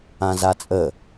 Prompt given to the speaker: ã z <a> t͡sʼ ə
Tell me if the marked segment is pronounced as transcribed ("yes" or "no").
yes